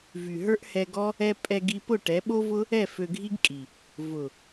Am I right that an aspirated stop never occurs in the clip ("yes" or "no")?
yes